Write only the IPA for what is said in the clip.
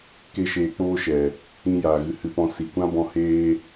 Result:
k e˦ ʃ eː˧ k͡p oː˦ ʃ ɛ˨ | ĩ˦ j aː˨ ɣ ɨ˧ h ɨ˧ p ɔ̃˧ s i˨ kʷ ã˦ b ɔ̃˧ h eː˧

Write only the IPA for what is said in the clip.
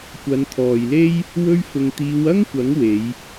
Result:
kʷ ɐ˨˧ n t̪ʰ ɔː˨ j l e˥ j | w ɵ˥ ɥ f ʊ˧ ŋ t̪ iː˨˧ w ɐ˥ ŋ kʷ ɐ˨˥ ŋ w e˨˧ j

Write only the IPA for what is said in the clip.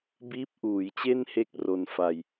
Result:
b iː˦˥ p̚ ʔ uː˩˦ j t͡ɕ e˥˩ n h e˦˥ k̚ r o˧ n f a˧ j

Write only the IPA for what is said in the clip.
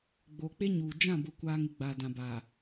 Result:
ɡ͡b oː˨ k͡p e˦ ɲ uː˨ d͡ʒ ã˦˨ b ʊ˨ kʷ aː˨ ŋ ɪ˨ ɡ͡b aː˨ d ã˨ b aː˨

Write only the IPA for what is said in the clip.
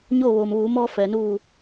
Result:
ɲ oː˥˨ ʋ oː˩ m ʋ uː˩˧ m ɔː˧ f ɛː˩ n uː˧˩

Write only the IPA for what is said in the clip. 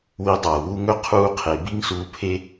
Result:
w i˧ dˤ ɐː˨ w u˦ ŋ ɵ˦ qʰ uː˧ qʰ e˨ b i˦ ŋ s uː˧ pʰ e˦

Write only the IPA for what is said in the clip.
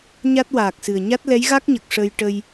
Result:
ɲ a˦˥ t̚ w aː˨˩ k̚ s ɨ˨˩ ə̯ ɲ a˦˥ t̚ l ɛ˧˥ j ɣ a˦˥ k̚ ɲ ə˨˩ k̚ ʂ ə˧ j ʈ ə˧ j

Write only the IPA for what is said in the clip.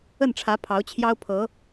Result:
ə˥˩ n ʈ͡ʂʰ ä˧˥ pʰ ɑ˧˥ ʊ̯ t͡ɕʰ j ɑ˥ ʊ̯ pʰ ɤ˧˥

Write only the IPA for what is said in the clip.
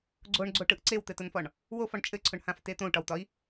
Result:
ɡ͡ǀ o ɳ ɡ͡ǀ o ʈ ɯ ʔ ǀ e w t̪ ɘ t ʊ n f ɒ ɳ | w o f ɒ ɳ t͡ʃʼ ɘ ǀʰ ʊ ɳ h ã f t e t̪ õ u̯ ʈ ɒ w t̪ ɒ i̯

